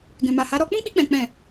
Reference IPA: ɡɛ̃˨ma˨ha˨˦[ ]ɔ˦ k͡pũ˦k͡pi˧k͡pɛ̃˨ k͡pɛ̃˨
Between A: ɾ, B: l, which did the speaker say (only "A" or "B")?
A